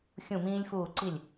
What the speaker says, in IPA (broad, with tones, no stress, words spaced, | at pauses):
xʲũ˧˩mĩː˧lʲfuː˧˩ ǀi˧˩lʲ